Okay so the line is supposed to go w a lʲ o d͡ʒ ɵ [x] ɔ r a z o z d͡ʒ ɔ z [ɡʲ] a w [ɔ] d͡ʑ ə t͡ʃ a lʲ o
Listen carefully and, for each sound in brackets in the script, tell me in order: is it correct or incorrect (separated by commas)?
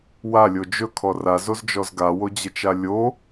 incorrect, incorrect, incorrect